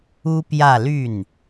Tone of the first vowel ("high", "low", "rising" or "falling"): high